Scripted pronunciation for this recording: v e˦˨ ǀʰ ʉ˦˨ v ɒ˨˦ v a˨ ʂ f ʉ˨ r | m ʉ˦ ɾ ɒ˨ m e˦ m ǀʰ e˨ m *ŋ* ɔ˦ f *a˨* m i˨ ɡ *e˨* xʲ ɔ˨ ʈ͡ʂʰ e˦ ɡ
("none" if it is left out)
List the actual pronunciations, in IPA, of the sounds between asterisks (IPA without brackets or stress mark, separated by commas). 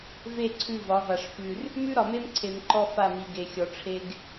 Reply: ǃ, a˦˨, e˨